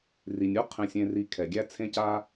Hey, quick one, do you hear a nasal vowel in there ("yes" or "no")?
yes